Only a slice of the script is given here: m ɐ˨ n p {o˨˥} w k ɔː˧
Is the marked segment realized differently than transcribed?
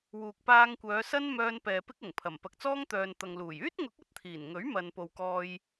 yes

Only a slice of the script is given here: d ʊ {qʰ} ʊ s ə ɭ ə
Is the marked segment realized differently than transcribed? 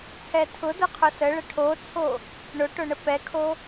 no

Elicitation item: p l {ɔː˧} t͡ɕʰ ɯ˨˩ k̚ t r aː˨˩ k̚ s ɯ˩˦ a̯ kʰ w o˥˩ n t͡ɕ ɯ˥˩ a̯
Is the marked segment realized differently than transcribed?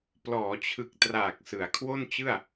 yes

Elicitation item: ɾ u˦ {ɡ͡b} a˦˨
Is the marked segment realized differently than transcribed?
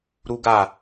yes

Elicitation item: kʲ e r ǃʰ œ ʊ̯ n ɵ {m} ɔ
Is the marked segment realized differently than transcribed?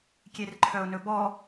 yes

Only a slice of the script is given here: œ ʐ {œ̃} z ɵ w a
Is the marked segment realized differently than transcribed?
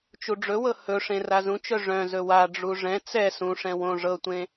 no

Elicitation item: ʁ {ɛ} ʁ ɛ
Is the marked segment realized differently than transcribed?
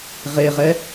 yes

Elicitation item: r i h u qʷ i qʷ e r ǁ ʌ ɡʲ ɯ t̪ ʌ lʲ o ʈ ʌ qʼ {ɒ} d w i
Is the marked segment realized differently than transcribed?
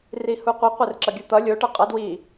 yes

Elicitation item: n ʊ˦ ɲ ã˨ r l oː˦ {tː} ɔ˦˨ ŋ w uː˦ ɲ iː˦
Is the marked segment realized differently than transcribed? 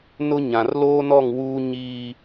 yes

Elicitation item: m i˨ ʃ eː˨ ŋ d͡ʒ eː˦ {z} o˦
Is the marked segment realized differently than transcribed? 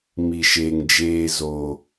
no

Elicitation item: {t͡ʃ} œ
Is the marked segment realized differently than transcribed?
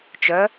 no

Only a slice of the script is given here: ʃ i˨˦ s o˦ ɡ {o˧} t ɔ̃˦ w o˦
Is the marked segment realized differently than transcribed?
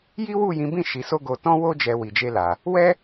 no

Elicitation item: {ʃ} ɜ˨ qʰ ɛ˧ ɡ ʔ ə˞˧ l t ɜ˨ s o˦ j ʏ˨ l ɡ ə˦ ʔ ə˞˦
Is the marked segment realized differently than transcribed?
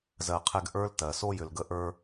yes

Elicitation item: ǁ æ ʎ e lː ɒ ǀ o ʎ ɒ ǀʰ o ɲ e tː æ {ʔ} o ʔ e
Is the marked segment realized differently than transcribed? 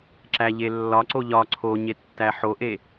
yes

